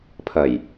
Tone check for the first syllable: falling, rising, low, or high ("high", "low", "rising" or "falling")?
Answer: low